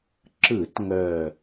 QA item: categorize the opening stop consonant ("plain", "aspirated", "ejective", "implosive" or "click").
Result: click